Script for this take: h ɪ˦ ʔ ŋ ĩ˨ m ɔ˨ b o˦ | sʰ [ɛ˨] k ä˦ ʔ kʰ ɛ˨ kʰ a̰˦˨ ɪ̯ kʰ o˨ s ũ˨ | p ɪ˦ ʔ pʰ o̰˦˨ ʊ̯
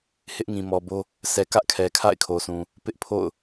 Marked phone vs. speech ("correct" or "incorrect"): correct